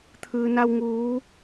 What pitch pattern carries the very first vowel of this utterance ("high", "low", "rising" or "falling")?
low